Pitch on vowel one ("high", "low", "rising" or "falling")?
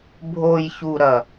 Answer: low